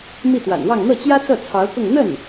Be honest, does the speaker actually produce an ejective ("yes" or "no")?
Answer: no